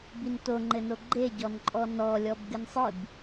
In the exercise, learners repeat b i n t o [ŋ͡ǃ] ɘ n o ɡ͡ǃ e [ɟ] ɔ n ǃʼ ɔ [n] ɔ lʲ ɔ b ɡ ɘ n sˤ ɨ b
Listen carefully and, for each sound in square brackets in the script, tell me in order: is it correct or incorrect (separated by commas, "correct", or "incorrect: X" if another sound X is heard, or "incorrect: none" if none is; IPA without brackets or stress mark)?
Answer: correct, correct, correct